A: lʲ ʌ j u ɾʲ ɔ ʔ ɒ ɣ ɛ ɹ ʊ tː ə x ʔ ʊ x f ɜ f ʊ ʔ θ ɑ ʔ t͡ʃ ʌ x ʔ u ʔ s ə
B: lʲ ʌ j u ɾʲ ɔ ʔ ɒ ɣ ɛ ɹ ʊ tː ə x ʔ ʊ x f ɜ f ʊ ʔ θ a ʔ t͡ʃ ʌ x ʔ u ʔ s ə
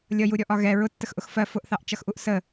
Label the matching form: A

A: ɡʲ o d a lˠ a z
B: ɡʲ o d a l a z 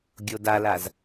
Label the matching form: B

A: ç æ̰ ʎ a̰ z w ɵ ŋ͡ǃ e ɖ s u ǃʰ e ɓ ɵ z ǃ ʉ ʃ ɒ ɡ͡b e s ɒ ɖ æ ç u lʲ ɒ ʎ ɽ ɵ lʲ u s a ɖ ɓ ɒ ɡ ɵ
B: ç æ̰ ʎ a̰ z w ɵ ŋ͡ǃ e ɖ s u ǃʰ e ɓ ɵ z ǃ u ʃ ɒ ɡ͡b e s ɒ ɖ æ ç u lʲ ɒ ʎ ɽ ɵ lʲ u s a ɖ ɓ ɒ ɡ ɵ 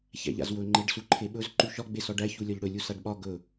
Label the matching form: A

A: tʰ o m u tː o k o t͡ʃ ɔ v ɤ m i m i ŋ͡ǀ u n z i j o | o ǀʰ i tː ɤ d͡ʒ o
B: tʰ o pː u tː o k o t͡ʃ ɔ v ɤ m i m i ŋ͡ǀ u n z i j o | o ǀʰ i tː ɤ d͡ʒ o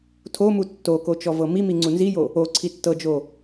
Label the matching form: A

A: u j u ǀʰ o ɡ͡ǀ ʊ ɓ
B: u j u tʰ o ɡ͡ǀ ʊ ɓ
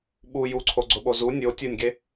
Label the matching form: A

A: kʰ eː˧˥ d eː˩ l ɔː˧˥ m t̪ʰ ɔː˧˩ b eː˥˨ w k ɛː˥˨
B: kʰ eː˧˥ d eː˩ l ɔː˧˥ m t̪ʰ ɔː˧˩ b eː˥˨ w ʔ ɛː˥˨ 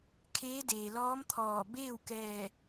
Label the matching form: A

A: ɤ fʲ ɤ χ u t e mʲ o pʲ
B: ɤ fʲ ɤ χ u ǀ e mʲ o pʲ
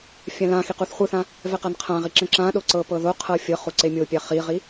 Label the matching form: B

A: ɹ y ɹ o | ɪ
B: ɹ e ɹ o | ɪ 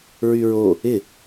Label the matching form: A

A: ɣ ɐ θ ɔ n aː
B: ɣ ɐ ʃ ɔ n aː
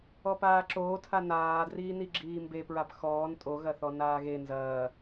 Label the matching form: A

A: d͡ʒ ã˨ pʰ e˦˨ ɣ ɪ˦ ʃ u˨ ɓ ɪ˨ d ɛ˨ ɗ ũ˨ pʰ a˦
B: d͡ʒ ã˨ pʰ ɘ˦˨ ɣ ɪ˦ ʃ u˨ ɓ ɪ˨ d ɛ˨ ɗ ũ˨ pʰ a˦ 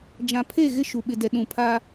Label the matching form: A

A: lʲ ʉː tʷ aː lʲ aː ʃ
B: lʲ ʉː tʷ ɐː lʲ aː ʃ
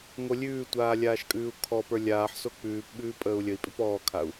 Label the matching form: A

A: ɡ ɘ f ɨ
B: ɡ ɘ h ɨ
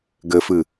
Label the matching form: A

